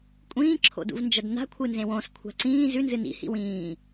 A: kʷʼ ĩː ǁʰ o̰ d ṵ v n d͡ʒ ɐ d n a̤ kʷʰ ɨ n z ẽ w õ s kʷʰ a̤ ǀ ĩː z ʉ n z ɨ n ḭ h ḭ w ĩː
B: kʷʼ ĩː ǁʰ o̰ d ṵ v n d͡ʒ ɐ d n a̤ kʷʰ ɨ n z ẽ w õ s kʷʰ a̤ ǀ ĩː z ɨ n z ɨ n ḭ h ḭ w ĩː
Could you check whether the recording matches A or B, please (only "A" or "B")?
A